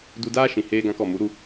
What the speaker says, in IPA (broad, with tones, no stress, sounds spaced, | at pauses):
d u˧ d aː˦ ʃ ĩ˨ h eː˧ ɡ ã˧ k ɔ˨ m u˨˦ ɾ u˧